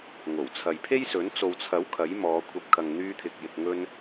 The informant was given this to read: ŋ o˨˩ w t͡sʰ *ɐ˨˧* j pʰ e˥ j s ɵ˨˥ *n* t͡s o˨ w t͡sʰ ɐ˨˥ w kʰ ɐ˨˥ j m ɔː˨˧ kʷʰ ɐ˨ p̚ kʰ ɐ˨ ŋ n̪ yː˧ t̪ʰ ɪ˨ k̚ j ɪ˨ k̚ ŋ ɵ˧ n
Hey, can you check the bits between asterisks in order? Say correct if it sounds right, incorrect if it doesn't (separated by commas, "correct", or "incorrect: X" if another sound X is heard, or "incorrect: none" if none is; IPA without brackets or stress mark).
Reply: incorrect: ɐ˨, correct